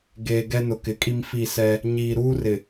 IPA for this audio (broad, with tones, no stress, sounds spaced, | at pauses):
ɡ eː˨ ɡ ɛ˦ n ʊ˨ k ɪ˨˦ kʼ i˦ m f i˦˨ s ɛ˦ | ɲ iː˨ ɾ uː˦ r ɪ˨